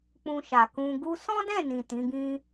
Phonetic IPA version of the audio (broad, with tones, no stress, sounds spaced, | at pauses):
k͡p ũ˧ ʃ a˨ k ũ˧ ɡ u˦ s ɔ̃˦ d ɛ̃˦˨ n ĩ˨ t ĩ˨˦ ɡ ĩ˦